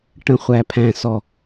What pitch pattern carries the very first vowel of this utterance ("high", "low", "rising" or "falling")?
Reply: low